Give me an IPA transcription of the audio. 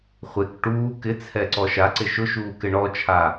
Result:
χʷ e k ʈ uː k ɪ t͡sʰ ɛ ǀ ɔ ʃ a ǀ ɪ ʃ ʊ ʃ uː k ɪ ɳ ɔ t͡ʃʰ a

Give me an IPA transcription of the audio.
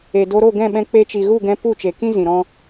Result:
e˨ d o˧ ɾ o˦˨ ɡ ɛ̃˦˨ ɓ ɛ̃˧ k͡p e˧ t͡ʃ i˨ ɣ u˦˨ ɡ ɛ̃˧ p u˦˨ t͡ʃ e˨ k ĩ˦ z ĩ˨ ɾ ɔ̃˦

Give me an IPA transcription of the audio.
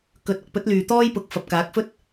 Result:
k ɵ˧ t̚ ɐ˨˥ k̚ p ɵ˨˥ t̚ l yː˨ t̪ ɔː˥ j p ʊ˨˥ k̚ f ɐ˨ p̚ k aː˨˥ k̚ f ɵ˥ t̚

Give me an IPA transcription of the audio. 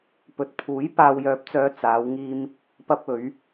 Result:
p ɵ˨ t̚ pʰ uː˨˥ j p aː˨ w j œː˨˥ p̚ t͡s œː˨˧ t͡s aː˨˧ w ŋ iː˧ m | p ɐ˧ p̚ ɵ˨˧ ɥ

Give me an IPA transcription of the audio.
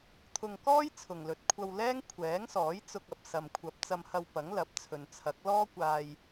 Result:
t̪ʰ ʊ˧ ŋ k ɔː˥ j t͡sʰ ʊ˨ ŋ l ɵ˨ t̚ kʷʰ ɐ˧ w l ɛː˥ ŋ kʷʰ ɛː˨˥ ŋ s ɔː˨˥ j t͡s ʊ˧ k̚ ɐ˨ p̚ s ɐ˨ m kʷʰ ɐ˨˥ p̚ t͡s ɐ˧ m h ɐ˧ w p ɐ˨˥ ŋ l ɐ˨˥ p̚ t͡sʰ ɵ˨ n t͡sʰ ɐ˨˥ k̚ l ɔː˥ kʷ aː˧ j

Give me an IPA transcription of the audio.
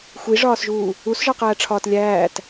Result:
xʷ i ʐ ɒː s ʒ uː | u s ʒ ɒ q æː ʈ͡ʂʰ ɒː t lʲ æː t

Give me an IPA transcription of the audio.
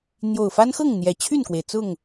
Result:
n̪ j o˨˩ ʊ̯ f a˦ n x ɤ˥˨ ŋ n̪ j ɛ˨˩ t͡ɕʰ y˥˨ n k w e˩ ɪ̯ t͡s ʊ˥˨ ŋ

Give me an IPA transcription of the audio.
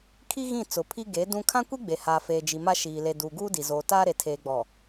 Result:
kʰ i˦ ɣ ĩ˦˨ t͡s ʊ˨ pʰ i˦ ɡ eː˨˦ d ũ˦ kʰ ã˦ kʷ i˦ ɡ͡b e˨ h aː˨ f eː˨ d͡ʒ i˨ m a˦ ʃ iː˨ l e˨ d uː˨ ɡ uː˦ d i˨ z oː˨ t aː˦ ɾ e˨ tʰ eː˨ ɡ͡b ɔ˨

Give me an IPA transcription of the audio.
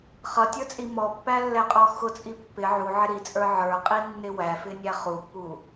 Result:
χ ʌ tʲ ə˞ t͡sʼ i m ɔ pː æ lː ɛ qʼ ɔ x ʊ t͡sʼ i pː ɪ ʕ u ʕ ɪ ɾ i t͡sʼ ə˞ ʕ ə˞ qʼ i nː ɪ w æ f ɪ nʲ æ χ u pː u

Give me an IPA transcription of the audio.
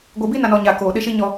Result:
ɡʷ e˦ b i˦ n a˨ n ɔ˨ ɲ a˨ k oː˨ ɗ ɪ˦ ʃ i˦ ɲ ɔ˦

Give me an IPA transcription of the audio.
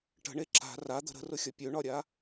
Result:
ʈ ə̤ ɳ e ǁ a̤ r a d̪ ə̤ ɾ ə̤ r ʊ xʲ ɒ pʲ ø ɳ ɒ ɾʲ a

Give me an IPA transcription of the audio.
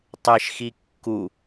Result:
tˤ e ʃ x i kː u

